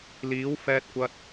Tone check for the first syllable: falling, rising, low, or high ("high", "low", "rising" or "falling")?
rising